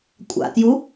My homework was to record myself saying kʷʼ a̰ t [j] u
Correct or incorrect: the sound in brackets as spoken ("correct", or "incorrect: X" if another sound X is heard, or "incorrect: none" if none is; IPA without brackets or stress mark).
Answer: correct